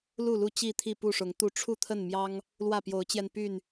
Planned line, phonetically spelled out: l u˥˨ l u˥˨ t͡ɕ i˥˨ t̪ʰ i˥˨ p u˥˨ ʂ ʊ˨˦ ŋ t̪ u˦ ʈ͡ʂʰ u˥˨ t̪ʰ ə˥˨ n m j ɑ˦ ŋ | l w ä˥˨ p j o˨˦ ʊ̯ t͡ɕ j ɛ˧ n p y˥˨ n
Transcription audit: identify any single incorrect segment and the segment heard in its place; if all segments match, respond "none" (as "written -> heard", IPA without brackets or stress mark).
none